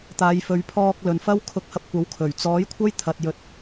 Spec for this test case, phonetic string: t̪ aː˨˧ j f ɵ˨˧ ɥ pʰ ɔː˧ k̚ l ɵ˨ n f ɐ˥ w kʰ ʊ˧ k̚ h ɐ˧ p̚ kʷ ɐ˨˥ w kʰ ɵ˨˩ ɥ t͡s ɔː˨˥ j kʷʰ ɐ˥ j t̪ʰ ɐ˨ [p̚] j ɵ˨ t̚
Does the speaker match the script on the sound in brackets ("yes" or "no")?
no